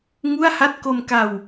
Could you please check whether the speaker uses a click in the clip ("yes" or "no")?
no